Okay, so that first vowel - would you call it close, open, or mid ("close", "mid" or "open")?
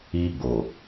close